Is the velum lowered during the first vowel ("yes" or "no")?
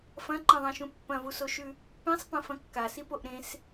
yes